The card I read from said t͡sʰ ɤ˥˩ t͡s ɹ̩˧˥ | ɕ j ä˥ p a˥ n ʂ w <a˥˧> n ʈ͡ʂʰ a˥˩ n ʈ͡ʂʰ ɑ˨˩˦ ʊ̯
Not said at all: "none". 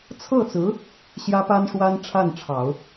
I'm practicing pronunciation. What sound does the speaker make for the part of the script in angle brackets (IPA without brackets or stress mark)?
a˥